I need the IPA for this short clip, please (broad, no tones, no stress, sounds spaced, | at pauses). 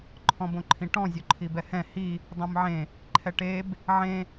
ǃʰ ɔ̃ b õ ǃʰ ĩ ʈ ɔ̃ zʲ o ǃʰ i b ɛ h ɛ̃ h i | dˤ õ m ʕ ẽ | ǃʰ ɛ ʈ e b | ʕ ẽ